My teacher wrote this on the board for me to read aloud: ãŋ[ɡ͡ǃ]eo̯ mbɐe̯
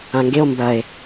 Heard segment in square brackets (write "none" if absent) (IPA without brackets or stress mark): ɡ